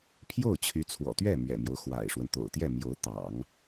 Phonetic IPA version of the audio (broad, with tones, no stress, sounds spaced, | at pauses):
pʰ j o˥˩ ʊ̯ t͡ɕʰ y˧˥ t͡sʰ w ɔ̰˨˩ t̪ ɥ ɛ˥˩ m ɥ ɛ̰˨˩ m j o˦ ʊ̯ x w a̰˨˩ ɪ̯ ʂ w ə˦ n t̪ o̰˨˩ ʊ̯ t̪ j ɛ˥˩ m j o˧˥ ʊ̯ t̪ ɑ̰˨˩˦ ŋ